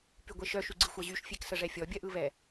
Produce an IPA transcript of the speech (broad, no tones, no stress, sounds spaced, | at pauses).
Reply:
p y ɡʷ e ʃ œ ʃ y ɡ͡ǀ ɯ xʷ ɜ ʑ y ʃ fʲ e k s ə ʐ ɛ fʲ ɔ bʲ ɜ ʔ ɯ β ɛ